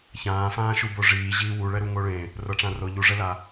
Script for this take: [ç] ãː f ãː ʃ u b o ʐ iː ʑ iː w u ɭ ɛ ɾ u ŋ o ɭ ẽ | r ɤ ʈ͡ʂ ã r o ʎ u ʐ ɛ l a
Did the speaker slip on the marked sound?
no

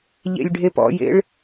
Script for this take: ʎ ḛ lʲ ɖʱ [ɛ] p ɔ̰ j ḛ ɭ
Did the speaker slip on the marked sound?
yes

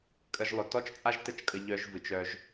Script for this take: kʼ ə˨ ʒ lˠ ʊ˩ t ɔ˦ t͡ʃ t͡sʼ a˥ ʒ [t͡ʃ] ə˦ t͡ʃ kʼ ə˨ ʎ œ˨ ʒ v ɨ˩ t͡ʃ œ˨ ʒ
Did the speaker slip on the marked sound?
yes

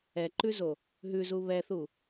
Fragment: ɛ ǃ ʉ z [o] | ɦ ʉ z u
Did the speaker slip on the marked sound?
no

